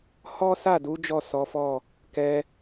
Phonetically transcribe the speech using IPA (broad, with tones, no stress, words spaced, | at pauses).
hɔ˦sa˦˨du˨˦ d͡ʒɔ˦˨sɔ˨˦fɔ˦˨ | kɛ˧